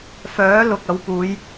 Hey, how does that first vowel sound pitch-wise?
rising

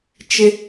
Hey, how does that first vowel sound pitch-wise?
high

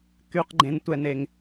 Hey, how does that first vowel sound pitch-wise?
low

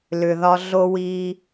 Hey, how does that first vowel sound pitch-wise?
low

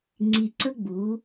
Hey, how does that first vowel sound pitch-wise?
low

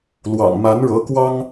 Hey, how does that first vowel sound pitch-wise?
low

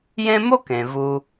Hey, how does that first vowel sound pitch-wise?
high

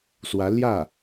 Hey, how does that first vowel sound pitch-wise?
rising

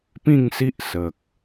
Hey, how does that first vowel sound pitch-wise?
falling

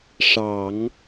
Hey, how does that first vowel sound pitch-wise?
low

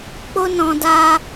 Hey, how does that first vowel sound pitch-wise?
high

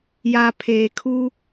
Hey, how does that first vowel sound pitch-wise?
high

